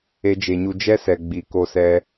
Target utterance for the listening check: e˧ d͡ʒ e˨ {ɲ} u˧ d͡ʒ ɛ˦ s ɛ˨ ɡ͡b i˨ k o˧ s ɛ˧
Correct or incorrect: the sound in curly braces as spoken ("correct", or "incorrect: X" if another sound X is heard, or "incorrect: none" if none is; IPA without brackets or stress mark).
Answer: correct